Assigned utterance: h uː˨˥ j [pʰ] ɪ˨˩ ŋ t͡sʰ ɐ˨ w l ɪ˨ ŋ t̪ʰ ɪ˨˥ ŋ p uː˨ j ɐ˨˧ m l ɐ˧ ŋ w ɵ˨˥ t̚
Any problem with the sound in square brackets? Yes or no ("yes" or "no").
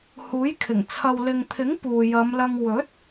yes